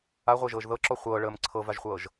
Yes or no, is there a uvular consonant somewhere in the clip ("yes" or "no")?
yes